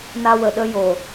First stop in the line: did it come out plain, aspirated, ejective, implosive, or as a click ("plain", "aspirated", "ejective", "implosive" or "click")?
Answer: implosive